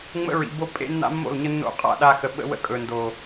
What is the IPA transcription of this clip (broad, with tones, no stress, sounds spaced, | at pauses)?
ŋ͡m ə̰˦ ɹ ḭ˨ b o˦ pʼ ḛ˦ nː a̰˦ mː o̰˦˨ l ɲ ə˦ nː o̰˦ qʼ a̰˦˨ ɗ a˦ x ə˨ ɓ ə̰˦ w ə̰˦ kʼ ɵ˨ n d o˨